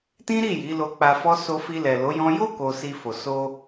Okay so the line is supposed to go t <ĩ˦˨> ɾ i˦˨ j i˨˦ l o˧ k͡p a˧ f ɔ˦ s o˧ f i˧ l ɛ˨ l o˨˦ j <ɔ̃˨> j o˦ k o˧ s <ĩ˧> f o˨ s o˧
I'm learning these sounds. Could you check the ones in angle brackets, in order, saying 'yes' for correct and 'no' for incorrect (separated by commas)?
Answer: no, no, no